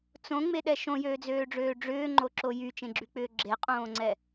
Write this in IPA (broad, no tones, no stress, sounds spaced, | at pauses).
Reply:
t͡s õ ŋ͡m e ɗ ɛ ʃ õ j øː d͡z øː ɖ͡ʐ øː ɖ͡ʐ ʏː ŋ͡ǃ o ǁ o j y t͡ʃ ẽ ɡ͡ǁ y k͡p ʏː ɡ͡ǁ e qʼ õː ŋ͡ǀ ɛ